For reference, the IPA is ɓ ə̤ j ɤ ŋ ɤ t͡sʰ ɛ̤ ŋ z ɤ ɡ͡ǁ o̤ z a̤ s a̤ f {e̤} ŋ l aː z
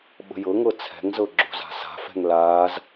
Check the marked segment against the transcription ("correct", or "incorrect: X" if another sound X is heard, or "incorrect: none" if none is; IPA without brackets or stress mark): incorrect: ɛ̤